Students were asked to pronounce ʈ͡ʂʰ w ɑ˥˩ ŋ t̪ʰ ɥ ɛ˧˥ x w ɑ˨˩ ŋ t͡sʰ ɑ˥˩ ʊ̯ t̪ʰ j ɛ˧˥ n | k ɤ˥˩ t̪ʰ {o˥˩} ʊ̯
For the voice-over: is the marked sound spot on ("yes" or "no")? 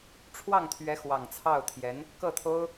no